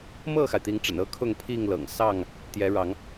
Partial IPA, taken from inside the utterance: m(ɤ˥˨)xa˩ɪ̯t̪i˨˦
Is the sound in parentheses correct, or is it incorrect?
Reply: correct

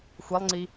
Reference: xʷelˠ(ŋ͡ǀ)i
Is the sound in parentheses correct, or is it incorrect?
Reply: correct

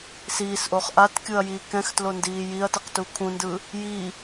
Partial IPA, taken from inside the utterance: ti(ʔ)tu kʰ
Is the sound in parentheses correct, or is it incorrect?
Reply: incorrect: q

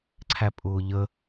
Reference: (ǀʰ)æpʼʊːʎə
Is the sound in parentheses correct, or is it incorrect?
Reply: correct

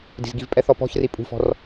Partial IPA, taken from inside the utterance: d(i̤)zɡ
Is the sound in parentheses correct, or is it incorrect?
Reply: correct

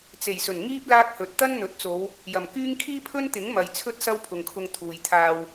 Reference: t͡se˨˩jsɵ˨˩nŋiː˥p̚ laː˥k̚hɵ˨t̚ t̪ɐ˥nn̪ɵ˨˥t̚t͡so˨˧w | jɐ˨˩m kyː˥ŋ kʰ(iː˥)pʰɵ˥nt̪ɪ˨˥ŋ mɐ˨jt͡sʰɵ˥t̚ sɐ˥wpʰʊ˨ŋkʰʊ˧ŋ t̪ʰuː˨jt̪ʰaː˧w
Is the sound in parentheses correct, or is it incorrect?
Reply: correct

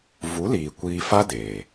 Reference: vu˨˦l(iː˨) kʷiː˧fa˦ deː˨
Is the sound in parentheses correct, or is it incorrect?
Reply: correct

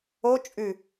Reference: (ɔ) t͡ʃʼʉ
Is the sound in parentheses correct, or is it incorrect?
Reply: incorrect: o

